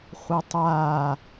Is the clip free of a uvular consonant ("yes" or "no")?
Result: no